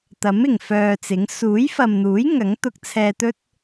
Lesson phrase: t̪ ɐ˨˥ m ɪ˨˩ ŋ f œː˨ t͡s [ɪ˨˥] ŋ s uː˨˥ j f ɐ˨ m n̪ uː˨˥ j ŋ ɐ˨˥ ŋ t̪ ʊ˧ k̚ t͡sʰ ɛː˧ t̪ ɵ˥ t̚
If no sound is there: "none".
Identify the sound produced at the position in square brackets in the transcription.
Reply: ɪ˨˥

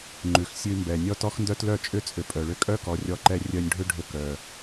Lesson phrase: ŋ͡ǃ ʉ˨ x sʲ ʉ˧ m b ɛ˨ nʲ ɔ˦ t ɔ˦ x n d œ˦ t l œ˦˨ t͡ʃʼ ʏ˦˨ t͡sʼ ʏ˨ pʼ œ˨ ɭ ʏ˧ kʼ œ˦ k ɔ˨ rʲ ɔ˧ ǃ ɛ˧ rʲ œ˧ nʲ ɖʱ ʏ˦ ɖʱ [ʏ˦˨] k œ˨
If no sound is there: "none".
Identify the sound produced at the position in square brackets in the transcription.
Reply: ʏ˧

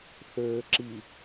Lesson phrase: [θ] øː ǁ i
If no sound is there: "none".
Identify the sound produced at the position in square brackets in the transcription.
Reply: θ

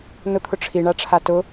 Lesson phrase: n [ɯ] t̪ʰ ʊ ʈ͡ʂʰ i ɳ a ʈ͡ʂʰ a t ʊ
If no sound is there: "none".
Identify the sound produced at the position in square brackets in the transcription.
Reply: ʊ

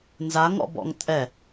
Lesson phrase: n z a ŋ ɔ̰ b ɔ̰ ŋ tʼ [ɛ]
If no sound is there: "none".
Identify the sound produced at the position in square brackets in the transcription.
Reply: ɛ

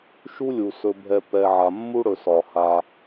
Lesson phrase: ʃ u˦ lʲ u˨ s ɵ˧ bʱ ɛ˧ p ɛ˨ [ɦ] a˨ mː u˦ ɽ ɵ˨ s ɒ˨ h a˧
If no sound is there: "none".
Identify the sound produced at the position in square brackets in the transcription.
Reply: ʕ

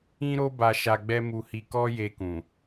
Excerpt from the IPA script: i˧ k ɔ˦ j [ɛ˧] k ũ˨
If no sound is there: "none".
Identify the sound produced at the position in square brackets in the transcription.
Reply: e˧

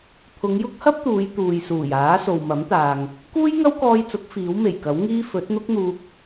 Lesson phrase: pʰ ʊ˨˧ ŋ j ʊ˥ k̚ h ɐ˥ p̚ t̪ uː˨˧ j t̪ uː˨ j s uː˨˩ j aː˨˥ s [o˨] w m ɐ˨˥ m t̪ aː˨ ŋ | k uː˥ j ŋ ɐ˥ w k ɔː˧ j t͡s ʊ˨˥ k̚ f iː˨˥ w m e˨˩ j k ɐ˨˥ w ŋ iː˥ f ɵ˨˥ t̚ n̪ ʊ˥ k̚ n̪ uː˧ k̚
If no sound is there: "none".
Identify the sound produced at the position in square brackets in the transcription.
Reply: o˨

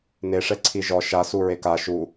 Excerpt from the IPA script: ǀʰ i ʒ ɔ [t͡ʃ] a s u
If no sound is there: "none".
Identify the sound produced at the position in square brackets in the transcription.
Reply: ʃ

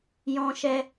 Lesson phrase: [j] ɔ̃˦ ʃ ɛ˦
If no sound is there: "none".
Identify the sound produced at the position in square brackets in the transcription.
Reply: j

